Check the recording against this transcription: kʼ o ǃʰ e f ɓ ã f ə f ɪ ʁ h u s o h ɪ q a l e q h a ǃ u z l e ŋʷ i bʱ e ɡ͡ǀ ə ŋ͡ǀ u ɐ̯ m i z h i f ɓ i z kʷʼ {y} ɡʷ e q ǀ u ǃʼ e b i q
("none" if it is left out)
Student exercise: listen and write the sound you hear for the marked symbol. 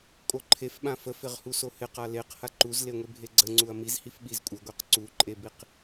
ɪ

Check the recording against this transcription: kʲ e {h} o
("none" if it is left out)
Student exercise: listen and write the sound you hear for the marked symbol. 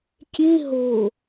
ɦ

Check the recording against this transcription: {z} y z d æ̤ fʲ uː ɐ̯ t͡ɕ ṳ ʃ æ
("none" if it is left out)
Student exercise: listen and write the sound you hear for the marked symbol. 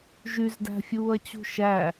ʒ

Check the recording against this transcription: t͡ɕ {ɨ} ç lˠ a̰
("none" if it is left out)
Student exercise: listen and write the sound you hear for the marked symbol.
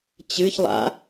ɨ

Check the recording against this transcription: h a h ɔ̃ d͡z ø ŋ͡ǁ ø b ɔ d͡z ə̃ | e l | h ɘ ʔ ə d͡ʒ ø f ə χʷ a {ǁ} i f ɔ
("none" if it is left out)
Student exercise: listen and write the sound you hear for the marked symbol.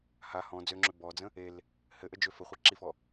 ǁ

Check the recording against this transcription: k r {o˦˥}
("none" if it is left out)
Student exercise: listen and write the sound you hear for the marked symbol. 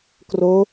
o˦˥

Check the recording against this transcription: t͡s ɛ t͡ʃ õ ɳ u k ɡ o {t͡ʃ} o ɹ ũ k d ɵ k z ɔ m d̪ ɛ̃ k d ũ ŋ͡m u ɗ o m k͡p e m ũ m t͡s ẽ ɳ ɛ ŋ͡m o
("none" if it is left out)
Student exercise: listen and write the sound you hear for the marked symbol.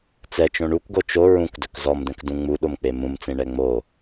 t͡ʃ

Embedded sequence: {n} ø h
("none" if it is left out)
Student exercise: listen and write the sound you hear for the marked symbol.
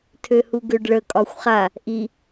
tʰ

